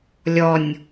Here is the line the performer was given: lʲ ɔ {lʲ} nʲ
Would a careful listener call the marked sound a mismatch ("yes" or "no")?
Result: yes